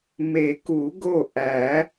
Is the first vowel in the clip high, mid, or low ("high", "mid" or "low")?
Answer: mid